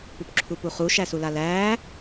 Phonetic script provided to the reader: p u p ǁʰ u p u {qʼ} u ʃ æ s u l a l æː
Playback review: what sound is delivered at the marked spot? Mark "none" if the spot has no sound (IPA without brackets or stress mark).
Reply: χ